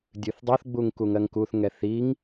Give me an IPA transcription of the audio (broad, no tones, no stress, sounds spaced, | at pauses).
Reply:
dʲ ɨ θ dˤ u θ ɡ͡b u ŋ k u ŋ ɜ ŋ k u θ ŋ ɛ θ i ŋ